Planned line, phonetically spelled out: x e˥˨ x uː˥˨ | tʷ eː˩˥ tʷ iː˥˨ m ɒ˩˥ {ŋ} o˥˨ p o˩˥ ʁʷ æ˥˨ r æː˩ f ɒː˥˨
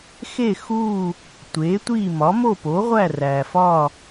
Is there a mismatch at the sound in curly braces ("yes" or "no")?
yes